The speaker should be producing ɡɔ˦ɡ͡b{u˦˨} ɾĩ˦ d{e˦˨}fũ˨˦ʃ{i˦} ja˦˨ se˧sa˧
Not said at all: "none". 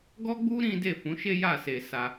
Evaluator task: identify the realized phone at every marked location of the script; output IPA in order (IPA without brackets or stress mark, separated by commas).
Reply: u˦, e˦˨, e˦